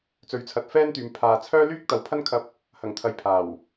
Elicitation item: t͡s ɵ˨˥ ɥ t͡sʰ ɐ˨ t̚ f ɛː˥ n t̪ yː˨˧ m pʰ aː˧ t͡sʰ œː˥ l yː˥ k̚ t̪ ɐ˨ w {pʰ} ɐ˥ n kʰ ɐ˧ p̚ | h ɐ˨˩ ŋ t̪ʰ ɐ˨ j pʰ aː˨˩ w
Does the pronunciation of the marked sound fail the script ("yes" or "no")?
no